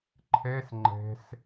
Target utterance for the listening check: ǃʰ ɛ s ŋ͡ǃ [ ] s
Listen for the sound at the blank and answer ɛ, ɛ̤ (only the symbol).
ɛ̤